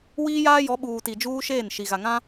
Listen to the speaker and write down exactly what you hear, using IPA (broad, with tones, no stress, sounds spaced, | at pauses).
w iː˦ j aː˦ j ɔ˨˦ ɓ uː˨ t i˨ d͡ʒ uː˦ ʃ eː˦˨ n ʃ i˨ ɣ a˨ ŋ ã˦